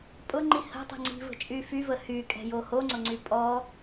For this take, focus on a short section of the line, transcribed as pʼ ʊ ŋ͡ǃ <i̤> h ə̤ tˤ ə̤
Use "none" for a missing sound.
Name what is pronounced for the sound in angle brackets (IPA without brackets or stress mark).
i